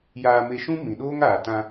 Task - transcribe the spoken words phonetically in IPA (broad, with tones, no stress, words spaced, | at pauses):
jaː˧me˧ʃũ˦ mĩ˨ ɗoː˦ŋaː˨ tã˧